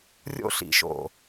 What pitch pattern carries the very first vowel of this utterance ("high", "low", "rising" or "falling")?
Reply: high